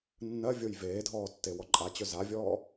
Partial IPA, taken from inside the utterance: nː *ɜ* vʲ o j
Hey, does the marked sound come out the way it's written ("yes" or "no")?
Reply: yes